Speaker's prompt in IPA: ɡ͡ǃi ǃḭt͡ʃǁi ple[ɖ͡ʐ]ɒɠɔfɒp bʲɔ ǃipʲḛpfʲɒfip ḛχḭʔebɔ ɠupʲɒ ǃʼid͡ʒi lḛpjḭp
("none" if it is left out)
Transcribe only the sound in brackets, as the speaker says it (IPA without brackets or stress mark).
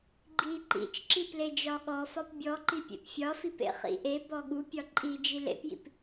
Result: d͡ʒ